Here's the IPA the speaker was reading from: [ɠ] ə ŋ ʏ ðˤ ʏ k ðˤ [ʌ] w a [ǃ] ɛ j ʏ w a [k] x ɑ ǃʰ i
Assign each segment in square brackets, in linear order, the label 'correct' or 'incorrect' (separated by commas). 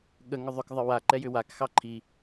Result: correct, incorrect, correct, correct